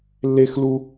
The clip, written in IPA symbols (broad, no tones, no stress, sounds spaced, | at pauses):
lː e x l u